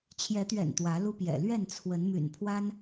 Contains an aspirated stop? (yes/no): yes